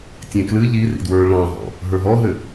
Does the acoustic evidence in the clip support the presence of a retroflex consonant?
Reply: yes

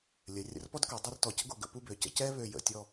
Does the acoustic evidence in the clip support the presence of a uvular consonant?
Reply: no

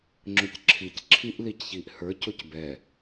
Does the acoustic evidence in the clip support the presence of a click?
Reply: yes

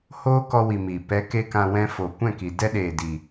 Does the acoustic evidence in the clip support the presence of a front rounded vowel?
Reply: no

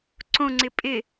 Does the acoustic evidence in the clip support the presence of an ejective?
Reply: yes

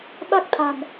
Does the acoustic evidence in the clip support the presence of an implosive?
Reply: yes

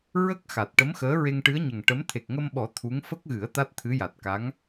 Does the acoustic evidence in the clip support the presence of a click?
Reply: no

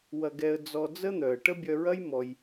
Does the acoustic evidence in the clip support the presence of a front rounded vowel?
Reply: yes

